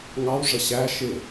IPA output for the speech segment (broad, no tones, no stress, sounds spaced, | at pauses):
ŋ ɑ w ʐ ə ɕ æ ʃ ɪ